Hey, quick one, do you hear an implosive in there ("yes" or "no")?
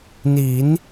no